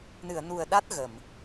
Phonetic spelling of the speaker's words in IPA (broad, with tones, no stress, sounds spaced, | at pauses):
n ɨ˨˩˨ ə̯ n u˨˩ ə̯ ɗ a˦˥ t̚ ɣ ə˨˩˨ m